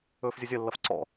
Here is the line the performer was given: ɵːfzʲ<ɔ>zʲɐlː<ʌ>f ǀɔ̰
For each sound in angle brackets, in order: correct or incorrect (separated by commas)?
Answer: incorrect, correct